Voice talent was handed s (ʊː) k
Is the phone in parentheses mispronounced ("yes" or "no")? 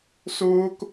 no